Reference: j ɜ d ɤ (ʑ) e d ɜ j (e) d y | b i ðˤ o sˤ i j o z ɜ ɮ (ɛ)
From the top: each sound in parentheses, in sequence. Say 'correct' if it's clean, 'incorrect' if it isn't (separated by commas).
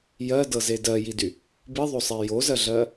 incorrect, incorrect, incorrect